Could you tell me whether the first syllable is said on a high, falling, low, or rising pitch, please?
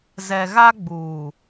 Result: low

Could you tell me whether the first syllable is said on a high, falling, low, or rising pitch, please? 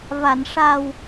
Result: low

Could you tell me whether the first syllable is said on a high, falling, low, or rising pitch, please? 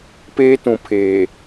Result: high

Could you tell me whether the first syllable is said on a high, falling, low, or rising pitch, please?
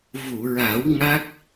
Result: low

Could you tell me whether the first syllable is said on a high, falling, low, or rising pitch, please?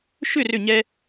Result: falling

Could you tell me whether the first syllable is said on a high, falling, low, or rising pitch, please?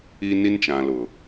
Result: high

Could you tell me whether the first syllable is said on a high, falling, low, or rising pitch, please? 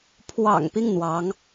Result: low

